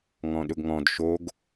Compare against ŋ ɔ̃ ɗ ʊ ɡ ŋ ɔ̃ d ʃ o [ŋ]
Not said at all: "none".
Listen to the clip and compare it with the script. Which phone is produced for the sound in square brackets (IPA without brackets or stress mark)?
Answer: ɡ